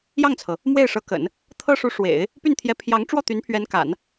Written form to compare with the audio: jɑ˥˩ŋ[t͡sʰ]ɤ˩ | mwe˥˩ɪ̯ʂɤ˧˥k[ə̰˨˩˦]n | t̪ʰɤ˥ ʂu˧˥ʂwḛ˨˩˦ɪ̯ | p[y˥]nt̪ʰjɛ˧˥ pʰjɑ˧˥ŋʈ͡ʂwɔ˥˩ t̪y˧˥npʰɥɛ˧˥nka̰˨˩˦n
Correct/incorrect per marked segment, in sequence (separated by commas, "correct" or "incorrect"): correct, correct, incorrect